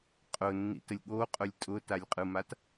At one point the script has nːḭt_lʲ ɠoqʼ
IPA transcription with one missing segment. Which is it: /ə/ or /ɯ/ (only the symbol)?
ə